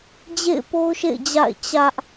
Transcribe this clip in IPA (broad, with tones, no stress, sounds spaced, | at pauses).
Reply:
d͡ʑ ḛ˦˨ ɪ̯ p o˦ ʊ̯ ʃ ḛ˦˨ ɪ̯ d͡ʑ a̰˦˨ ɪ̯ t͡ɕ ä˦ ʔ